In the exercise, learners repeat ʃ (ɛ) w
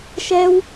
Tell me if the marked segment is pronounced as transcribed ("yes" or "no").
yes